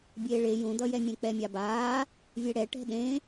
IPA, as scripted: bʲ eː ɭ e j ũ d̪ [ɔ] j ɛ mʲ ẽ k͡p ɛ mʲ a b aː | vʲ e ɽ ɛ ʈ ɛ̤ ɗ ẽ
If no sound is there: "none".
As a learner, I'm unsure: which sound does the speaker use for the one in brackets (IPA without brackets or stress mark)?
ʌ